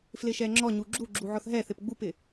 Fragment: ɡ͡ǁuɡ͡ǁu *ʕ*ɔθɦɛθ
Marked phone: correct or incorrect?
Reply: correct